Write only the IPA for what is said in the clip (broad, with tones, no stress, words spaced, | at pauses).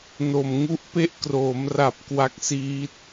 no˨˩m ŋu˦˥ʔpe˥˩ʔ kroː˩˦mra˨˩p̚ kwa˦˥k̚siː˦˥t̚